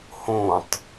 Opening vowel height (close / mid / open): mid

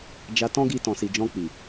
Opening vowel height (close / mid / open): open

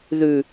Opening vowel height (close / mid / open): close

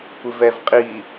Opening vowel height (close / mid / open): close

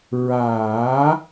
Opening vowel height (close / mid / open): open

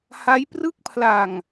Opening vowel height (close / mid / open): open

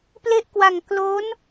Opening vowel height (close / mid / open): mid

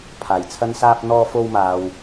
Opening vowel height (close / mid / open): open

